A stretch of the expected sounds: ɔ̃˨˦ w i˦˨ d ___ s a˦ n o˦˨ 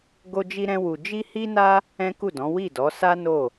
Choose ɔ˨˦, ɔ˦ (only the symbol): ɔ˨˦